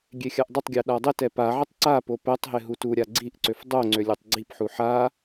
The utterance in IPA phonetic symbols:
ɡʲexʲaʔdˤɪtˤɡʲa ɗadˤɪtɛ paʕɪtˤ ǀapo pɛtˤɦɪ ɦutuɾʲa ɡ͡ǀiʔǀøf dˤoŋ͡ǀø lʲøtˤɡ͡ǀipħu ħa

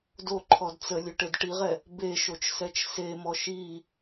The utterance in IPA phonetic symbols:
do ǃʰɔdt͡sə lʲøʈedʈiʁɛ | beʃot͡ʃ sɛt͡ʃsemɔ ʃi

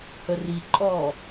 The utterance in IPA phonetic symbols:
həriǃʼɔː

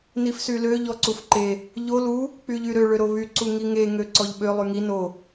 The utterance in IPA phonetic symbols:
nifsylø ʎɔǀufǃe | ʎo lu | k͡pyʎyɾø ɭøɾoβy ǀuŋiŋe ŋøǀɔʎɓø lˠyŋi no

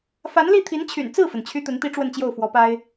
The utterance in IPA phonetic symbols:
fa˧˥nli˥˩t̪ʰi˧˥nt͡ɕʰy̰˨˩n t͡sɹ̩˥˩fə˩n t͡ɕʰy˥t̪ə˧˥nt̪i˥ ʈ͡ʂwə˥˧nt͡ɕjo˥˩ʊ̯fwɔ˧˥pa˥ɪ̯

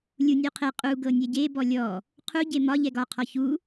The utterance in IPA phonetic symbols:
lʲunʲuqʰe qʼu ɡɤnʲɛɟe bɔlʲɔ | qʰu ɟemɒ ʎɛɡɒ qʰɔçu

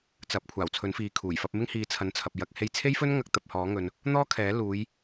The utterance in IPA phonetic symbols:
t͡sɐ˨˥p̚ kʷʰaː˨˩wt͡sʰɵ˨˥nfiː˨kʰuː˨˩j fɐ˧p̚mɪ˥ŋhiː˨˥ t͡sʰɐ˨˧nt͡sʰɐ˨p̚jɐ˧k̚ he˧jt͡sʰe˥jfɵ˥nŋɐ˧k̚ t̪ɐ˧p̚hɔː˨˥ ŋɵ˨n | n̪ɔː˥kʰɛː˨˥ luː˨˧j

